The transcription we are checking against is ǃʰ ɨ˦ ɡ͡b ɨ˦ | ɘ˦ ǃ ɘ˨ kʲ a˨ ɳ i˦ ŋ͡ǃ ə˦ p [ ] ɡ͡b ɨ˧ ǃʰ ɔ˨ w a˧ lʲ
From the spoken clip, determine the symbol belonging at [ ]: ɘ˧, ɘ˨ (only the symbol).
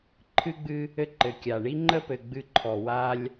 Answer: ɘ˨